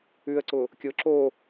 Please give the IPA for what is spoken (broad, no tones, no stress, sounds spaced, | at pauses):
ʉ ə̯ ǀ ʊ | kʲ ʊ ǁ o